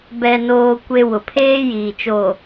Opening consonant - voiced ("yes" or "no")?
yes